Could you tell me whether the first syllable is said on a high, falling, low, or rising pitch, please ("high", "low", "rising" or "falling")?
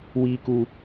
high